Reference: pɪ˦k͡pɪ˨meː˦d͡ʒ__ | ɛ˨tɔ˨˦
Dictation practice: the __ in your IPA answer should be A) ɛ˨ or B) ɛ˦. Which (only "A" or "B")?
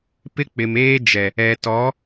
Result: A